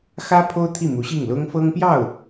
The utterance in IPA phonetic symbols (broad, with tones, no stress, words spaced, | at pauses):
xä˥ pʰo˥ʊ̯t̪ʰi˥˩ mu˧˥ɕi˥˩ŋlʊ˥ŋ fɤ˥ŋpjɑ˥˩ʊ̯